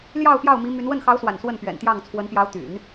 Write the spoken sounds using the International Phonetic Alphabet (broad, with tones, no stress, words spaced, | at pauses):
ljɑ˥˧ʊ̯ pjɑ˥˩ʊ̯mi˧˥my˧˥n wə˥˩nxɑ˧˥ʊ̯swa̰˨˩n swə˥˩npɥɛ̰˨˩nt̪jɑ˥˩ŋ t͡sʰwə˧˥npjɑ˧˥ʊ̯ t̪y̰˨˩˦n